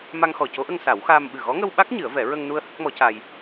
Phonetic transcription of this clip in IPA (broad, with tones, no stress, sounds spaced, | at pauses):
m a˧ ŋ x ɔ˨˩ c o˧˥ ʔ ə˧ ŋ s a˨˩˦ w x aː˧ m ɓ ɨ˨˩ ɣ ɔ˧˥ ŋ ə˧ w ɓ a˦˥ k̚ ɲ ɨ˨˩˦ ə̯ v ɛ˨˩˦ ɹ ə˧ ŋ n u˧ ə̯ h ə˦˥ k̚ m ɔ˧˥ c a˧ j